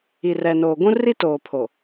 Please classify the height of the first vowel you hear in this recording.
high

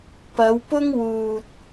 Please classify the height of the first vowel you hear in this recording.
low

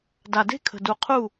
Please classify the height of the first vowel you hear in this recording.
low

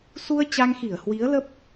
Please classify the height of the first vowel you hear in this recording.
high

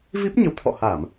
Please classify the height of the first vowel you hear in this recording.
high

